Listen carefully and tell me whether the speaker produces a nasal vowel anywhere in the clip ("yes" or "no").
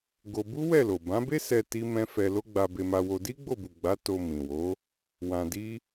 yes